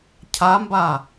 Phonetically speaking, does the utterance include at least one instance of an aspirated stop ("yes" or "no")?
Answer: yes